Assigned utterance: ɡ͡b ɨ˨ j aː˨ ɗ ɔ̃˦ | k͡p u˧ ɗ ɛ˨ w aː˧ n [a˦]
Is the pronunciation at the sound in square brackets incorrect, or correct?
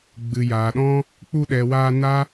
correct